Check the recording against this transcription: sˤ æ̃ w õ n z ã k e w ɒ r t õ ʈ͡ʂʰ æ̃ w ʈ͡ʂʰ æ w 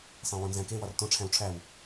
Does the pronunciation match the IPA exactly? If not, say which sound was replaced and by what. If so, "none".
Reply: ã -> æ̃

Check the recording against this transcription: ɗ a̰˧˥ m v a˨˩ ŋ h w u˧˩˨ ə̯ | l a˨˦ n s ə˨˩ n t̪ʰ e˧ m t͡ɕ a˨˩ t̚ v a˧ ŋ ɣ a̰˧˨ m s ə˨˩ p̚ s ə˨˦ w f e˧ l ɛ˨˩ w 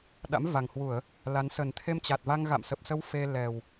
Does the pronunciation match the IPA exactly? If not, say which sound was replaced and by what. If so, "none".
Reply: none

